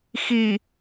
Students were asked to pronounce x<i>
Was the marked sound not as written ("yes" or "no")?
no